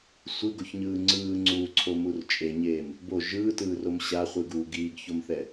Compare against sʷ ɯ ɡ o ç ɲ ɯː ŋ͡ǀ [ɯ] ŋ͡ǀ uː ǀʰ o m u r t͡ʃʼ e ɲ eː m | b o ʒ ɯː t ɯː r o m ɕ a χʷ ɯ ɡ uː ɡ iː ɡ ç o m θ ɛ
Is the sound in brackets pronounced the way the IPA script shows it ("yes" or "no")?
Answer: no